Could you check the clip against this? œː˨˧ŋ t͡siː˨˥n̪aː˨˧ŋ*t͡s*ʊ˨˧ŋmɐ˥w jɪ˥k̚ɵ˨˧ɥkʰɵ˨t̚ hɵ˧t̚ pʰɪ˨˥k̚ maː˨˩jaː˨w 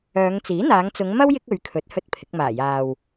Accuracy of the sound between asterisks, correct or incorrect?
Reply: correct